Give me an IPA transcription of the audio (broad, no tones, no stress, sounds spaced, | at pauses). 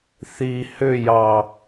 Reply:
θ i h ʏ j ɑ